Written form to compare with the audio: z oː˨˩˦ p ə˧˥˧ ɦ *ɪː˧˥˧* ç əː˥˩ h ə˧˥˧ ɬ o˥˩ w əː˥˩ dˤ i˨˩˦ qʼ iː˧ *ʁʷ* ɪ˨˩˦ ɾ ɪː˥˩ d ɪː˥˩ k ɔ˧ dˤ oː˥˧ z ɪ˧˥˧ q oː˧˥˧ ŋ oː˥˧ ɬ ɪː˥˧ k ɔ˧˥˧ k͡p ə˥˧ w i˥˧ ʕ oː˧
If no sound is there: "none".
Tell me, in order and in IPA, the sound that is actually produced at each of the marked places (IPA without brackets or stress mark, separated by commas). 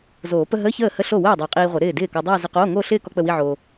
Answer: əː˧˥˧, ʁʷ